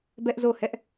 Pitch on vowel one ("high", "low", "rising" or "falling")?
high